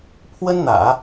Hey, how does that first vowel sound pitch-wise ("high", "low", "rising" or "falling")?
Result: high